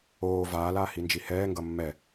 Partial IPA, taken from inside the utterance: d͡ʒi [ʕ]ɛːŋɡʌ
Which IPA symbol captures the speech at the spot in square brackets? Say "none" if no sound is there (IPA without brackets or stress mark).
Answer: h